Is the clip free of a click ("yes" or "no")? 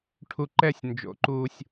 no